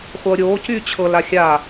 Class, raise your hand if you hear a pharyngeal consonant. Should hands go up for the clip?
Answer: no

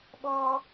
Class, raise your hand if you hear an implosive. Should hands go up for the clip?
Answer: yes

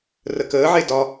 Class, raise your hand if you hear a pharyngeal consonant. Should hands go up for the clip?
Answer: yes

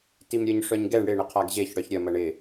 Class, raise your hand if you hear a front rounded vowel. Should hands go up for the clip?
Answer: yes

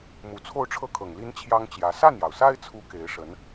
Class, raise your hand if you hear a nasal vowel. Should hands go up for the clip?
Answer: no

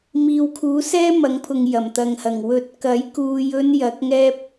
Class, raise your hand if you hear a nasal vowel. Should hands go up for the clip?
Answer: no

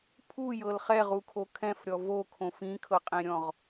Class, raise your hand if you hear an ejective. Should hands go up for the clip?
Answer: yes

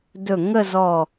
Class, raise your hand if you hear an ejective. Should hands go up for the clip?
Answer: no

